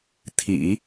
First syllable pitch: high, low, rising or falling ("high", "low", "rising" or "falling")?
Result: low